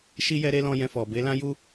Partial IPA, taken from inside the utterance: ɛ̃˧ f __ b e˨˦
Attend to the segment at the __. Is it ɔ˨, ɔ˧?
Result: ɔ˨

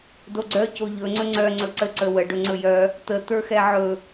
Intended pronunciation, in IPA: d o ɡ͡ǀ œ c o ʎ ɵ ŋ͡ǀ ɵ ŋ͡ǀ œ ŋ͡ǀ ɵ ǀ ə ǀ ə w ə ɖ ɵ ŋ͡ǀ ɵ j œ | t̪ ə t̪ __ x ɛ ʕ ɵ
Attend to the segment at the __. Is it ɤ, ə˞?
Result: ə˞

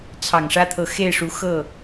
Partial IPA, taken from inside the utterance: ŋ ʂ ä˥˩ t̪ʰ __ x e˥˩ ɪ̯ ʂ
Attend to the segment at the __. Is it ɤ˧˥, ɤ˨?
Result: ɤ˧˥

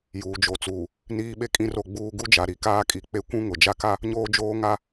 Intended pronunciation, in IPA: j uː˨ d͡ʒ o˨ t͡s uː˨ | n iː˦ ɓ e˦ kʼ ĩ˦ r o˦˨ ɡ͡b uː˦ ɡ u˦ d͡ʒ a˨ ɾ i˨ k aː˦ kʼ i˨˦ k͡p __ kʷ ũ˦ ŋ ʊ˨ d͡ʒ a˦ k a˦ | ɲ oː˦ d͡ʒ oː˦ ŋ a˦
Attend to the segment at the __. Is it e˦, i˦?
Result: e˦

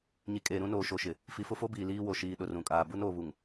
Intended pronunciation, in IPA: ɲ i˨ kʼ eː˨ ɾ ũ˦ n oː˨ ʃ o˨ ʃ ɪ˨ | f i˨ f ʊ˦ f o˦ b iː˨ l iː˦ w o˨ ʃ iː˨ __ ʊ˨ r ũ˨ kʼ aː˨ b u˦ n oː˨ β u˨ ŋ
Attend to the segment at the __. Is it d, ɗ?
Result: ɗ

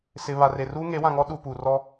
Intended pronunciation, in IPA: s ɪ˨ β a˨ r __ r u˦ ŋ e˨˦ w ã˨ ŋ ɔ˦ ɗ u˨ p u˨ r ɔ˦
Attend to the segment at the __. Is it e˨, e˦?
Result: e˨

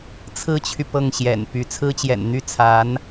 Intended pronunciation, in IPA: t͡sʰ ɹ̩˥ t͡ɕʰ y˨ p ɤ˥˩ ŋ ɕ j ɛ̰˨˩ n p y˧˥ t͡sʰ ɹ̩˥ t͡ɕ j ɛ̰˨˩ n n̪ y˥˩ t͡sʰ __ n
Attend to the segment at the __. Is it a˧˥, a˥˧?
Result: a˧˥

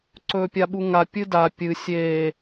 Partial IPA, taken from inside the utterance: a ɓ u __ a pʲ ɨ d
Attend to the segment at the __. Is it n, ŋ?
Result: ŋ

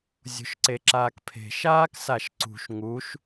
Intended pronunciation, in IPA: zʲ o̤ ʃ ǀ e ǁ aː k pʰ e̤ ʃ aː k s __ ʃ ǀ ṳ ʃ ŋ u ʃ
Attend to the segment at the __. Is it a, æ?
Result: a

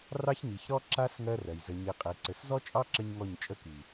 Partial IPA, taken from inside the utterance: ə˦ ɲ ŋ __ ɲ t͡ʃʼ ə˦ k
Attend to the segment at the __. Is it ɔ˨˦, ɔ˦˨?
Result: ɔ˦˨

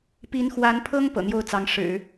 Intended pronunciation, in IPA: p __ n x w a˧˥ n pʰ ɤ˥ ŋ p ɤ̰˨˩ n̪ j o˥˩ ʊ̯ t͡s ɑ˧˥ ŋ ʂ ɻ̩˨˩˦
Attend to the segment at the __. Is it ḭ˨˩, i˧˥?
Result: i˧˥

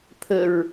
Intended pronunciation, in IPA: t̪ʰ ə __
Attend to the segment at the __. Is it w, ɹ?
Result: ɹ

